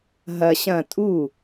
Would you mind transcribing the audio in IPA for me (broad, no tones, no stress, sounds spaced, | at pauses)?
ɦ ɐ ɕ ɐ̃ tʼ u